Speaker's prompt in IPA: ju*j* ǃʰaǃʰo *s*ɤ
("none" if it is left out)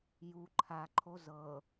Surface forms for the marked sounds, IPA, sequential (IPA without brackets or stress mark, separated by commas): none, z